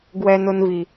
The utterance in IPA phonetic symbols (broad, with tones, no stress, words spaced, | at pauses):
ɡwɛ˧nʊ˧nvi˨